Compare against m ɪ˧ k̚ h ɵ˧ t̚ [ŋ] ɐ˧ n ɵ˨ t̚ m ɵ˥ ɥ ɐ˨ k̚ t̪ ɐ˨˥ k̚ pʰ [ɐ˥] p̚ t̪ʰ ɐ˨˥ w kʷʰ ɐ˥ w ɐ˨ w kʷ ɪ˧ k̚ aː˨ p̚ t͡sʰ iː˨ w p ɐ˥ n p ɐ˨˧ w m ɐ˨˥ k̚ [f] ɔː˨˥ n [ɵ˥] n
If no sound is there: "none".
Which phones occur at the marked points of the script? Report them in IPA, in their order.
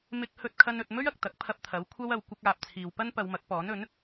kʰ, ɐ˧, p, ɵ˨˥

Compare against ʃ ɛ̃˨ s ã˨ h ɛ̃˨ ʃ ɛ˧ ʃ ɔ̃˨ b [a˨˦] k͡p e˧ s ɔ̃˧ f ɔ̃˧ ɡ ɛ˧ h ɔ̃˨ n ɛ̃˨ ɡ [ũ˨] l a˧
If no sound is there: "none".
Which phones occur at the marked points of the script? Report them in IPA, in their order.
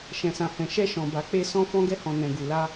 a˨, u˨

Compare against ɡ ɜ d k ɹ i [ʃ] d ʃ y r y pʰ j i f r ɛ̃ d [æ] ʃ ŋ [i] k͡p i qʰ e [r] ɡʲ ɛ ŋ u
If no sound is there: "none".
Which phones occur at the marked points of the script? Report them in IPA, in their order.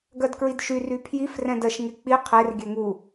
none, ɜ, e, r

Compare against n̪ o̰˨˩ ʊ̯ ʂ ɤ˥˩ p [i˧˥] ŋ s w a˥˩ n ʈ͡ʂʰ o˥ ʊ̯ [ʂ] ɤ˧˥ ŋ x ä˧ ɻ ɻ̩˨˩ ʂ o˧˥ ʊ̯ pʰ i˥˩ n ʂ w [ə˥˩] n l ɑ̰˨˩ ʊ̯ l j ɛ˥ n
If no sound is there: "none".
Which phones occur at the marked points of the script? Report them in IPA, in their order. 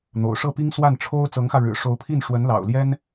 i˥, t͡s, ə˧˥

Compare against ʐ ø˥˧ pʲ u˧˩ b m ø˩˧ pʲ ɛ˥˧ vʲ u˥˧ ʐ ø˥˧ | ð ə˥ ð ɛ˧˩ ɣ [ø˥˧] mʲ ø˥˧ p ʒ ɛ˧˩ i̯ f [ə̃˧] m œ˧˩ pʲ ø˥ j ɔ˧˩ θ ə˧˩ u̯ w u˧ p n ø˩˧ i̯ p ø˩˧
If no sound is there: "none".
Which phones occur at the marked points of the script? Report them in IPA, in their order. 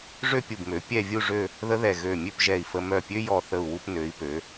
ø˧˩, ə˧

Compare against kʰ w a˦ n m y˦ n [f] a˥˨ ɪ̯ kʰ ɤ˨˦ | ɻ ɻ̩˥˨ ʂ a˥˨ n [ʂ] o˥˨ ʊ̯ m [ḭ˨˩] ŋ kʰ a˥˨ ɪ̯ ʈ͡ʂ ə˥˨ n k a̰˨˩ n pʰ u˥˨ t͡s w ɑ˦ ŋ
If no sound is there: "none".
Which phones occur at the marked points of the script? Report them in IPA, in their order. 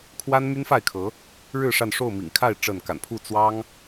f, ʂ, ḭ˨˩

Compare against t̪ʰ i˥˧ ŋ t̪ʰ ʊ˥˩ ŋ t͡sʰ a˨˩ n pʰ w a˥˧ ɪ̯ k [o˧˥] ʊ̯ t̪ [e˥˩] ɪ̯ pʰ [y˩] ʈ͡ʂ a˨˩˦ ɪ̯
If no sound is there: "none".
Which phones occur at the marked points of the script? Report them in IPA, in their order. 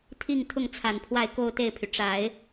o˥˧, e˥˩, y˩

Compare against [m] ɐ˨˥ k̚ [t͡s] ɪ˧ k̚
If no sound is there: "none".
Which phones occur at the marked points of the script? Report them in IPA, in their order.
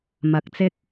m, t͡s

